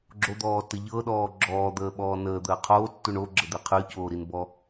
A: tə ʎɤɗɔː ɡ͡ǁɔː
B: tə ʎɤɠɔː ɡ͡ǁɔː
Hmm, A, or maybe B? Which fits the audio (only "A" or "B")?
A